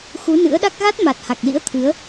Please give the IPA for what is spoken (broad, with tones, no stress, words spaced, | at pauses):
xu˨˦nɨ̰˧˥ə̯ɗa˦˥k̚ ɣa˦˥t̚ma˨˩t̚ ha˨˩k̚lḭ˧˥ə̯ t̪ʰɨ˨˦ə̯